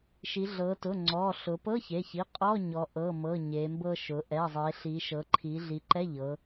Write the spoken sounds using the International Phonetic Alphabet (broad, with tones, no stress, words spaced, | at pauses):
ʃi˩˧ɮɤ˩˧tʊ˩˧˩ ŋ͡ǀɔ˩˧˩ ɬʊ˩˧pɤ˧˥˧çe˩˧˩çi˩˧˩ qʼɔ˧˥˧ ɲɔ˩˧ʔɤ˩˧˩mɤ˩˧˩ ɲe˩˧mbɤ˧ʃʊ˩˧ ʔɛ˩˧˩zˤe˩˧ɬi˩˧ ʃɤ˩˧ǃʰi˩˧ ɮi˩˧ǃɛ˧˥˧ʎɤ˩˧